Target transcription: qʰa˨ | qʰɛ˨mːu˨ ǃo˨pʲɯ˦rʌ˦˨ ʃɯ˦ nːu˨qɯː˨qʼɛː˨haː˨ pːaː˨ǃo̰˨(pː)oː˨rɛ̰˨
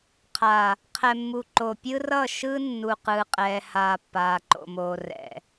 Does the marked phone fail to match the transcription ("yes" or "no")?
yes